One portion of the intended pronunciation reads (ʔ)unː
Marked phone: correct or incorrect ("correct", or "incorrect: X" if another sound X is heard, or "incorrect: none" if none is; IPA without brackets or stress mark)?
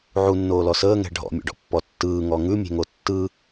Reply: incorrect: ʕ